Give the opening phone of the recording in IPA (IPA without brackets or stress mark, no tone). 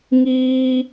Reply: ŋ